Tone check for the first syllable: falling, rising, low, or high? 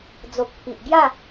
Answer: low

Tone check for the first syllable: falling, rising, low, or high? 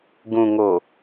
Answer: low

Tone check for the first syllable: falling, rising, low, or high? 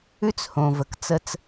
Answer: high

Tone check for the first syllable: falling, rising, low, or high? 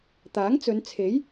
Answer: rising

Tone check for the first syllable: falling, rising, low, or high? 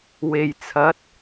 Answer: low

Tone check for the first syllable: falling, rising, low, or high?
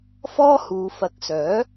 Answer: high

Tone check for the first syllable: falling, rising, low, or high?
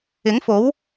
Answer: rising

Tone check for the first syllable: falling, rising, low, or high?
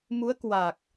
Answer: rising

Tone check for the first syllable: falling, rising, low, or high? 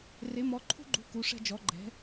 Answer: rising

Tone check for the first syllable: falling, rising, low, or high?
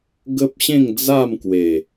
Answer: high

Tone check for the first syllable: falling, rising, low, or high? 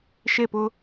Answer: falling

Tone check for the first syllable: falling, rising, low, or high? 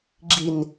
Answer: low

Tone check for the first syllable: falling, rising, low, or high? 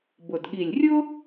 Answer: low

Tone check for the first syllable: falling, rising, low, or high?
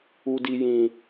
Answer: low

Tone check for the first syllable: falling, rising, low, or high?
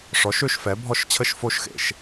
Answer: rising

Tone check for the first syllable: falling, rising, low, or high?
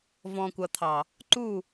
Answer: low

